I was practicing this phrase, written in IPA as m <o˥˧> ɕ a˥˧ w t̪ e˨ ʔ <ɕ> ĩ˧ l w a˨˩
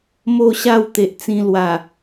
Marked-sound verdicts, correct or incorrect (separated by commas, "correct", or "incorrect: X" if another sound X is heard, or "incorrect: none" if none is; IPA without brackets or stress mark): correct, incorrect: t͡s